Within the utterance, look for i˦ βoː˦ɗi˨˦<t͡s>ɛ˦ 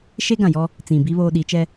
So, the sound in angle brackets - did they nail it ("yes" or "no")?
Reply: no